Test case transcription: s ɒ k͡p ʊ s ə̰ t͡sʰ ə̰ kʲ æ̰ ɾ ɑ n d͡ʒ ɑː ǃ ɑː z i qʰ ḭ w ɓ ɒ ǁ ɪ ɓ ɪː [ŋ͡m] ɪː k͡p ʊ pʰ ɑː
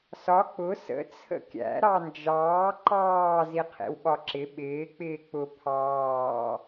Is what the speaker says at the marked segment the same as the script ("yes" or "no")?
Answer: no